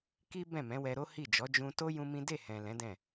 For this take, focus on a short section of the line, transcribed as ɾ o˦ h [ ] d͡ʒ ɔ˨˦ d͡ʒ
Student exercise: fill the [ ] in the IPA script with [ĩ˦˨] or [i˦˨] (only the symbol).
i˦˨